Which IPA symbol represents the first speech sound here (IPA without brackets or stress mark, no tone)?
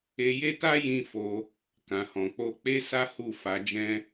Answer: e